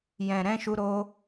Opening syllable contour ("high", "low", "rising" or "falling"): low